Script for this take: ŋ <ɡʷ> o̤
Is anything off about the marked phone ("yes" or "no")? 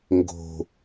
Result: yes